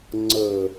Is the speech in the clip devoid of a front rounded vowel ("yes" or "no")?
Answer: yes